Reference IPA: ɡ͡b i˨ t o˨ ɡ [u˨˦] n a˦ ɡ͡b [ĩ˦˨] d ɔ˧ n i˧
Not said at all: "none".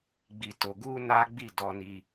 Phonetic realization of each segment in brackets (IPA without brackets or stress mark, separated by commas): u˧, i˦˨